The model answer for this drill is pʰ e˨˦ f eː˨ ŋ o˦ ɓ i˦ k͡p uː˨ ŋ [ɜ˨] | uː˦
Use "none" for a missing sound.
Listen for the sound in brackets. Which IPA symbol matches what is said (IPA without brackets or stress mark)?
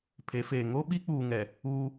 ɛ˨